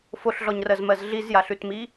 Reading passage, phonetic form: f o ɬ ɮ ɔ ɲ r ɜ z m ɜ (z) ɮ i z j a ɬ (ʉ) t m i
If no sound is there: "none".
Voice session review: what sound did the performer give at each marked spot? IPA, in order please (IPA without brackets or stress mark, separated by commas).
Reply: z, ʉ